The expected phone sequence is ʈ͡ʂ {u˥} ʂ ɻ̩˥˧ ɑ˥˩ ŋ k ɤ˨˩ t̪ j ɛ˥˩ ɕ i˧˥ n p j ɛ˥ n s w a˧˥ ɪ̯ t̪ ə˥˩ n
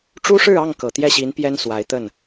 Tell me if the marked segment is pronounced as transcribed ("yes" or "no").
yes